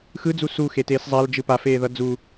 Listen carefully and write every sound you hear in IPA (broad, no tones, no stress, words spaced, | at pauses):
xɯd͡zu suxeteːs zˤald͡ʒɯ pafeːðʌ d͡zu